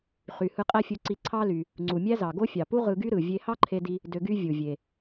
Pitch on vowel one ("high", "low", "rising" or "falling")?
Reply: low